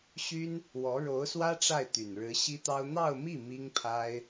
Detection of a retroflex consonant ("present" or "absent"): present